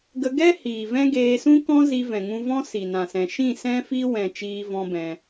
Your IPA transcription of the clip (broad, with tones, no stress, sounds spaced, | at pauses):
ɡ ə˧ ɡ ɛ˦ h iː˨ v ɛ̃˦ ɡ eː˧ s ũ˦ k ɔ̃˦ z i˧ v ɛ̃˨ ŋ ũ˧ v ɔ̃˦ s i˨ n ã˨ s ɛ̃˨ ʃ ĩ˦˨ s ɛ̃˦ f i˦ w ɛ̃˦˨ t͡ʃ iː˦ v ɔ̃˦ b ɛ̃˧